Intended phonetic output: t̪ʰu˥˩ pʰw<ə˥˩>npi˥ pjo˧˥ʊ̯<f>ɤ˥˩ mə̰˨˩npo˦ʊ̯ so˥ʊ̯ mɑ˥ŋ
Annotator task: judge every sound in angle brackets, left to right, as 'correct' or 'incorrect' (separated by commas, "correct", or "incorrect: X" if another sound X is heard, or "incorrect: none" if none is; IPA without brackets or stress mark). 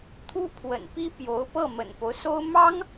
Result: incorrect: ə̰˨˩, incorrect: p